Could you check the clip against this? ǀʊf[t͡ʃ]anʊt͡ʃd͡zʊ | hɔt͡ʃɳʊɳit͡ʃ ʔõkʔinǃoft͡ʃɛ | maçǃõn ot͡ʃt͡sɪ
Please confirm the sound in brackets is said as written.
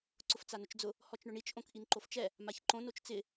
no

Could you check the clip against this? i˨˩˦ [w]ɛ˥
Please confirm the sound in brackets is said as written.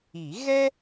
no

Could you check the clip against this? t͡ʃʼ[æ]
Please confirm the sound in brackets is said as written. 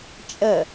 no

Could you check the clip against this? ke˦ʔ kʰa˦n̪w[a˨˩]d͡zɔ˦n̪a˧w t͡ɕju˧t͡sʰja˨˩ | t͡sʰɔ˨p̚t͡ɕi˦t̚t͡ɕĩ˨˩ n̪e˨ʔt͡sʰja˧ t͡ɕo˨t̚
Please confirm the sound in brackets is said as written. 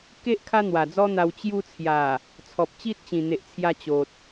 yes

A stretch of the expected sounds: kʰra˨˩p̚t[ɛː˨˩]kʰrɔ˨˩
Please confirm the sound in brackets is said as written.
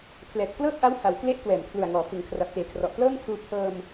no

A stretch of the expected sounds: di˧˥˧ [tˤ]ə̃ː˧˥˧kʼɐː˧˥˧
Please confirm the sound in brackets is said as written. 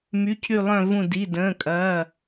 no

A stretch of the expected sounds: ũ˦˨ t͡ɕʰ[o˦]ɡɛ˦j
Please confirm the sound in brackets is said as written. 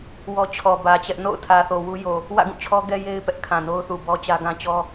no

